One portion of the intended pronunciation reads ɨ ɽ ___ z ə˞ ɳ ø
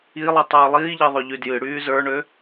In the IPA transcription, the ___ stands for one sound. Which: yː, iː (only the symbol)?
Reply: yː